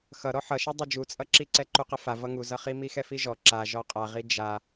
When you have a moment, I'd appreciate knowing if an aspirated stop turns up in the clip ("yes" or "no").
no